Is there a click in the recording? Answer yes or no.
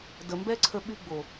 yes